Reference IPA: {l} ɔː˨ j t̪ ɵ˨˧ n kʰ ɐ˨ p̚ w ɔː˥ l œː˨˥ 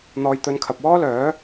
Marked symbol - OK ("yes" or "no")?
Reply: no